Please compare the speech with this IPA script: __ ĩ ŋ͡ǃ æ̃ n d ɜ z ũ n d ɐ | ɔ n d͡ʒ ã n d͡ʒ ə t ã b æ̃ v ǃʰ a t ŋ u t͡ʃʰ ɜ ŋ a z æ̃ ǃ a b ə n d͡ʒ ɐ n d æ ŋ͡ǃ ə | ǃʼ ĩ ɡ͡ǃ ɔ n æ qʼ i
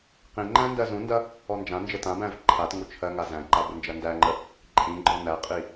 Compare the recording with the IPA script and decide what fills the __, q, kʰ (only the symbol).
q